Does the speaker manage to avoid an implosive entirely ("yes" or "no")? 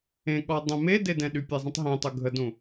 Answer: no